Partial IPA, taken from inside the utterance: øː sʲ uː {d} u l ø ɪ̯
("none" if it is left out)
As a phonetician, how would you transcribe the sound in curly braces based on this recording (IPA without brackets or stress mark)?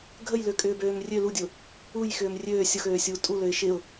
tʼ